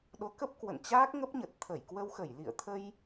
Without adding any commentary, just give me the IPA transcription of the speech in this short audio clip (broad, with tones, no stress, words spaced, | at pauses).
ɗo˨˦kə˦˥p̚ kwə̰˧˨nt͡ɕaː˦˥k̚ŋə˦˥p̚ɲə˨˩t̚ t̪ʰə˧˩jkwə˧wxə˧˩j lḭ˧˨ə̯t̪ʰə˧j